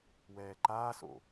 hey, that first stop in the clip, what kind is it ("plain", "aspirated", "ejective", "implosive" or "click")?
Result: click